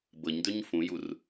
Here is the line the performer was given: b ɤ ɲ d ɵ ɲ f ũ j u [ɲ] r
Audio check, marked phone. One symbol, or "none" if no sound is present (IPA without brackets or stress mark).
none